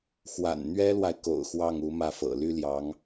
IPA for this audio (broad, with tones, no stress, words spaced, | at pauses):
xwa̰˨˩nn̪ɥɛ˥lwa˨ɪ̯ ko̰˨˩ʊ̯xwɑ˥˩ŋ u˧˥mä˥˩fɤ̰˨˩ ly˥ljɑ˧˥ŋ